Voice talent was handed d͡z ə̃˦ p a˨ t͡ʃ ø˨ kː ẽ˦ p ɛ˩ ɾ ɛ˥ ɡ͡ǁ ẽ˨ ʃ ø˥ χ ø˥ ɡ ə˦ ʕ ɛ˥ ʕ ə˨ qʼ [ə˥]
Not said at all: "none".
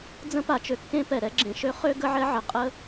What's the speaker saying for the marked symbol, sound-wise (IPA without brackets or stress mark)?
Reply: ə˥